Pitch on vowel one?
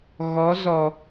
rising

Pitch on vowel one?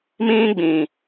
high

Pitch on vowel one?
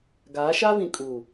rising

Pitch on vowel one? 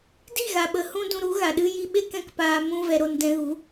falling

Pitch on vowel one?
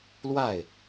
falling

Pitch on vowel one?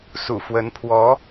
low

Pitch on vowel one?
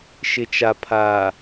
low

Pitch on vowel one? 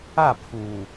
falling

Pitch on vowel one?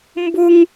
high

